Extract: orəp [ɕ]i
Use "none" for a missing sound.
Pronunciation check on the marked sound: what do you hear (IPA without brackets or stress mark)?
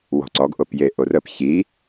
ç